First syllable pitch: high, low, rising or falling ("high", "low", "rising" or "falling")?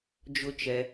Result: high